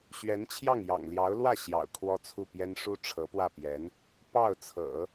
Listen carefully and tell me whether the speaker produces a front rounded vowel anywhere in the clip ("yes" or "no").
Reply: no